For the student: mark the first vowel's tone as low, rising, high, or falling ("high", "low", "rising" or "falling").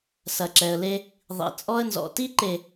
low